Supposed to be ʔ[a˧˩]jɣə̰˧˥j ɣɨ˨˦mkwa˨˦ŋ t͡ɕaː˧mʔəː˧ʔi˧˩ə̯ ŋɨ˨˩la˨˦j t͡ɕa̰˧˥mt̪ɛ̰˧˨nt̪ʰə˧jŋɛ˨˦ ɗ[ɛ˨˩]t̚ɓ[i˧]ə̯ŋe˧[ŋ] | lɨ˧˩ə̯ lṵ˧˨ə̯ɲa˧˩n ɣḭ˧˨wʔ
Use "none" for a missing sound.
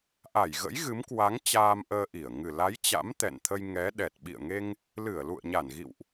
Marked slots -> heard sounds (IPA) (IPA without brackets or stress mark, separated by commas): a˧˩, ɛ˨˩, ḭ˧˨, ŋ